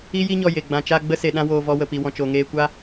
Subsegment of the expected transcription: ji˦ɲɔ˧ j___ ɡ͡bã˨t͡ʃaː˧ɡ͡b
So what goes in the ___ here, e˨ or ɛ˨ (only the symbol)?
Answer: e˨